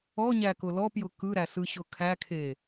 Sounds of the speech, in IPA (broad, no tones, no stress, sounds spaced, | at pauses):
ɔ ɲ æ k ʊ l ɔ p j ʊ k ɯ ɾ æ s ɯ ɕ ʊ kʰ æ kʰ e